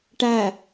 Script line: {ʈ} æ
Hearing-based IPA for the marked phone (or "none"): ʈ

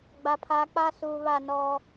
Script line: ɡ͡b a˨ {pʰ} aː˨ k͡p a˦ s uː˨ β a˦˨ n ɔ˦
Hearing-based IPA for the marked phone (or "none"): pʰ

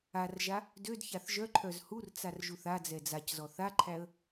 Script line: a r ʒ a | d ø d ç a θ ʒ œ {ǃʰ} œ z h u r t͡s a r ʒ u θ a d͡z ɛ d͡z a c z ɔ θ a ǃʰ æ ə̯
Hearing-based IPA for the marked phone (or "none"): ǃʰ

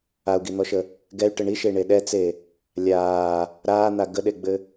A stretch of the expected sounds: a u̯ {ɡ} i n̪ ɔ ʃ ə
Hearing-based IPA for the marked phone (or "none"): ɡ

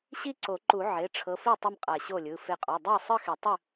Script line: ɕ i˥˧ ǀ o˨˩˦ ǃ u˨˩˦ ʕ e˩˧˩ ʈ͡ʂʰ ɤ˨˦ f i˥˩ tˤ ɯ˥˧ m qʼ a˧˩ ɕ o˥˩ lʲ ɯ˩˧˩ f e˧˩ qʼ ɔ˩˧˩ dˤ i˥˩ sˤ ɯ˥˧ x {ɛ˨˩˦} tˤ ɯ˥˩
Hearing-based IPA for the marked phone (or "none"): ɛ˨˩˦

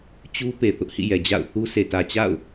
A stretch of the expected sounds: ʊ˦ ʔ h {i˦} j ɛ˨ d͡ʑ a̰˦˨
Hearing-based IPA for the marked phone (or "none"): ḭ˦˨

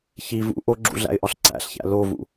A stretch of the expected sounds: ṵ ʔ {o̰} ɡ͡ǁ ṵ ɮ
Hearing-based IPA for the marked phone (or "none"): o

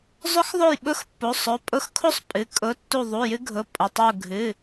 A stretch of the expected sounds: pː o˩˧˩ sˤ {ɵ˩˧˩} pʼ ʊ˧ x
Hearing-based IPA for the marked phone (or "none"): ɵ˩˧˩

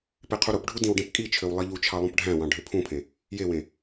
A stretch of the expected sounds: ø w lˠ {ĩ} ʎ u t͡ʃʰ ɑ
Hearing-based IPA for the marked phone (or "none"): i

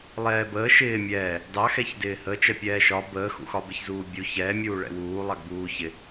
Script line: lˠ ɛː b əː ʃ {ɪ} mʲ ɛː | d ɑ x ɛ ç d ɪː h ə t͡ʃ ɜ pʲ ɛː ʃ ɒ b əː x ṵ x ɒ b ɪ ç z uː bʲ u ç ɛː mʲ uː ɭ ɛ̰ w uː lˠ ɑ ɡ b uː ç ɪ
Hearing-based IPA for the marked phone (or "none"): ɪː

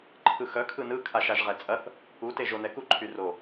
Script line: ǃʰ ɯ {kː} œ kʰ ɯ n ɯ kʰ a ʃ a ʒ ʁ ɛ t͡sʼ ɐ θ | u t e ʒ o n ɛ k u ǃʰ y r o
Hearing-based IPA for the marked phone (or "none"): x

